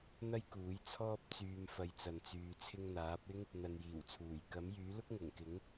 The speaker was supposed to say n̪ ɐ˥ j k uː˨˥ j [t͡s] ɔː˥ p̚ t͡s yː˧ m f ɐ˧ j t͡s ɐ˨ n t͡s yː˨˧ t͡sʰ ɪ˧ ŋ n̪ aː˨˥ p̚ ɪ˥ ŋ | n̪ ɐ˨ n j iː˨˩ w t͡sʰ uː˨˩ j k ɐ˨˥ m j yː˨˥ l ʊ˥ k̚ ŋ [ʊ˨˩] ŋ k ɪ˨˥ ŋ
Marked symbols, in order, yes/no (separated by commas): no, yes